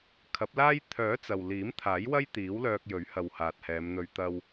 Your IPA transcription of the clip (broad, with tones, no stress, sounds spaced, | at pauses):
kʰ ɐ˨˥ p̚ l aː˥ j t̪ʰ œː˨˥ t͡s ɐ˨ w l iː˨˥ m t̪ʰ aː˨˥ j w ɐ˥ j t̪ iː˨˥ w l œː˧ k̚ j ɵ˨˥ ɥ h ɐ˨ w h aː˨ t̚ h ɛː˨˧ m n̪ ɵ˧ ɥ t̪ ɐ˧ w